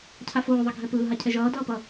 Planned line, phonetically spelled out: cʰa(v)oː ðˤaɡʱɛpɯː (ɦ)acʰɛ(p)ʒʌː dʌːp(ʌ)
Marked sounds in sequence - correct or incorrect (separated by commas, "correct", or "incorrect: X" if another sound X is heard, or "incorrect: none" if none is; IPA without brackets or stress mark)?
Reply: incorrect: f, correct, incorrect: none, correct